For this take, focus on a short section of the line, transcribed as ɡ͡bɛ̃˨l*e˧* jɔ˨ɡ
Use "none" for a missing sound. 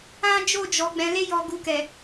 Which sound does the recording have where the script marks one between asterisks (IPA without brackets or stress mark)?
e˧